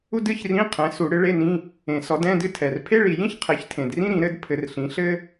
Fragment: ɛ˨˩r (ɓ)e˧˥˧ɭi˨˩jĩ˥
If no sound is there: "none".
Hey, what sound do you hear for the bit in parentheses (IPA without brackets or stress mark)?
pʰ